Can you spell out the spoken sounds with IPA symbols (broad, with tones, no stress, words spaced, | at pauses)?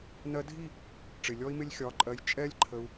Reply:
nɜ˧dʱi˦˨ | ʈ͡ʂɪ˨lʲɔ˦i̯mɪ˦lʲ xʲɒ˨˦ǃʼɜ˧j t͡ʃʼɛ˦lʲǃʰə˧u̯